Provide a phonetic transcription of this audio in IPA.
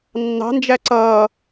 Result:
nː ɑ̤ n d͡ʒ æ ǀ ʌː

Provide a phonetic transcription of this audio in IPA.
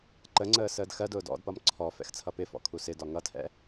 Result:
ǃ ə ŋ͡ǀ əː s əː d x ɜ d ʊː d ɔ̰ d p ʌ m ǀʰ ɔ f ɛ̰ x t͡sʰ ʌ p ɪ f ɔ̰ kʰ u s ɪ d ɒ ŋ ʌ tʰ ɛ̰

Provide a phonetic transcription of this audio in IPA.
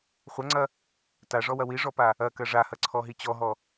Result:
χʷ ɐ ŋ͡ǀ ɐ | t a ʐ ɔ w ɐ w i ʐ ɔ p a | ɐ k ɐ ʐ a h ɐ ǀʰ ɔ ɦ i t͡ɕ ɔ ɦ ɔ

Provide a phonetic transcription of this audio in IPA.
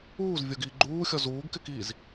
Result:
uː z vʲ o ɡ iː ɡ͡ǃ uː xʲ ɔ z uː ɡ k ɪ k iː z

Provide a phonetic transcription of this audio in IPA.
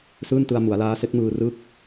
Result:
s ɯː˥˩ n t ɯ˧ a̯ m u˩˦ a̯ l aː˦˥ s e˦˥ k̚ m ɯː˧ r ɯ˥˩ k̚

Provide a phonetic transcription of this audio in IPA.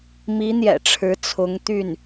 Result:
m i˧˥ n̪ j ɛ̰˨˩ ʈ͡ʂʰ ɻ̩˧˥ t͡sʰ ʊ˧˥ ŋ t̪ y˥˩ n

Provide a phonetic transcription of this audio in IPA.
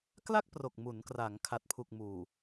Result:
k l a˥˩ k̚ p r o˨˩ k̚ m u˩˦ n k r a˩˦ ŋ kʰ a˨˩ t̚ pʰ u˨˩ k̚ m uː˨˩

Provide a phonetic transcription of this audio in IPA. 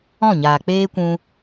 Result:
ɔ̃˦˨ ɲ aː˨ k͡p eː˦ kʷ ũ˧

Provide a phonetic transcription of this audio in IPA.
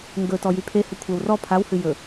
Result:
ŋ ɡ ɵ t ɔ j y pʰ e h ɵ kʷʰ ɛ w r ɔ pʰ a w h ɨ j ɵ

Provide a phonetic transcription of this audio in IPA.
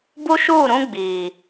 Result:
b u˦ ʃ uː˦˨ ɾ ũ˦ ɡ͡b iː˨

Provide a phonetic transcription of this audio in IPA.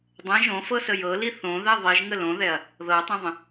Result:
dˤ ɛ̃ ʒ õ f ɤ s ə j ɤ l i θ õ ð ɛ ðˤ i ʒ ŋ ə l õ ð ɛ ɐ̯ | ð ɤ tˤ ɛ̃ ðˤ ə̃

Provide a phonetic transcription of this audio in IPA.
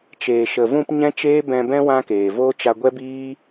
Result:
t͡ʃ eː˨ ʃ ə˨ v ũ˧ p ɲ ɛ̃˦ t͡ʃ eː˦ b ɛ̃˧ b ɛ̃˦ w ã˦ k eː˨ v oː˦ t͡ʃ a˧ ɡʷ ɛ˦ b iː˦

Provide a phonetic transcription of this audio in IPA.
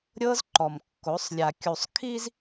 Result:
ɾʲ ɤ˦ z ǃ ɔ˨ m kː o˨˦ sˤ lʲ a˨ kʲ u˨ sˤ kʰ i˦ z

